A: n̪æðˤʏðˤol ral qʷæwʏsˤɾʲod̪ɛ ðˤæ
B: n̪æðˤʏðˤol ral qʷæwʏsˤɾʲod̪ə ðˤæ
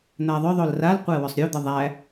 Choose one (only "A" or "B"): B